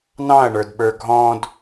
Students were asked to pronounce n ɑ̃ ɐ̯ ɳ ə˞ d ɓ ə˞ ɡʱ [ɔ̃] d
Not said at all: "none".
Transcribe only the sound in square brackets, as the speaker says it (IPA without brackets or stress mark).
ɔ̃